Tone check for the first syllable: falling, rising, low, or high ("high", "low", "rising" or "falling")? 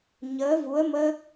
rising